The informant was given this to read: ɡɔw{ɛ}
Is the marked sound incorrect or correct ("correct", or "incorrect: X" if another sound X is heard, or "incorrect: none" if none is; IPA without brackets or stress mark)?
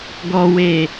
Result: incorrect: e